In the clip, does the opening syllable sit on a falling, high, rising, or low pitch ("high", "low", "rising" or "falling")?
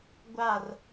falling